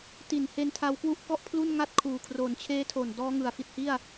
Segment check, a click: absent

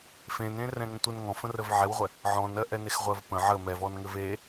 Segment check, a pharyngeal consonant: present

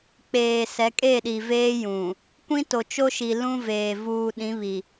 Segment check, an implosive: present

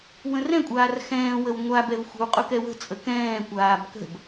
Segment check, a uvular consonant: present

